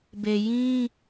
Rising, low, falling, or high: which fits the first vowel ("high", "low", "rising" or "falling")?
low